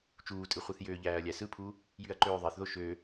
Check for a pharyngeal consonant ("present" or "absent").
absent